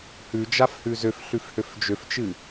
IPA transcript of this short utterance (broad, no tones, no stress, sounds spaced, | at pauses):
h ʉ d͡ʒ a f h ʉ z ø f ɬ ʉ f h ø f d͡ʒ ø f t͡ʃ ɨ